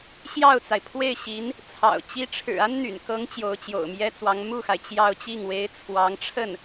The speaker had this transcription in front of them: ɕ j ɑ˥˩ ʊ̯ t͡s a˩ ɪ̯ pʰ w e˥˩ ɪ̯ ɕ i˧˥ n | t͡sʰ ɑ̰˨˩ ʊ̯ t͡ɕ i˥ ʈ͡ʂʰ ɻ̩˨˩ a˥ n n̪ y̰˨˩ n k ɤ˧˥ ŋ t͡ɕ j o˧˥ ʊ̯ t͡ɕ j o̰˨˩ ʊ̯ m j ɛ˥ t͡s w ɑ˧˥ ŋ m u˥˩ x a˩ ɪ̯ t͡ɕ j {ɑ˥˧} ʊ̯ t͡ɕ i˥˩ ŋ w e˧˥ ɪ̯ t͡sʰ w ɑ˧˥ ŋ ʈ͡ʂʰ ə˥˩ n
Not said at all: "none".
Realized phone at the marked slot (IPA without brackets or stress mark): ɑ˥˧